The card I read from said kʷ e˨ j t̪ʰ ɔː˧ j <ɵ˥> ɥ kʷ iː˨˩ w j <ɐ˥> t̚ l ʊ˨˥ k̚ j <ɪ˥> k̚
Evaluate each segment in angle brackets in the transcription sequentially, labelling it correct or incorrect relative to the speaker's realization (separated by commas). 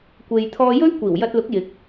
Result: correct, incorrect, incorrect